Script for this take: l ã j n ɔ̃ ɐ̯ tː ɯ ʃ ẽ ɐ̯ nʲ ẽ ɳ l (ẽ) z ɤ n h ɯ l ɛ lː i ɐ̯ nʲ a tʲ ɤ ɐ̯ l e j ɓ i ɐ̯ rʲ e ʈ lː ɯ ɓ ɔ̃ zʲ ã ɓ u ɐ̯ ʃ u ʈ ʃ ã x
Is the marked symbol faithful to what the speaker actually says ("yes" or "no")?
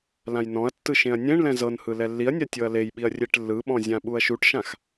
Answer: no